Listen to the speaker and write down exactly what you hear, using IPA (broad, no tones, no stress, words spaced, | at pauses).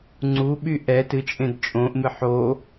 ŋ͡ǀuɓy ʔɛ tɨt͡ʃʼẽd t͡ʃʼõʔmɨ ħo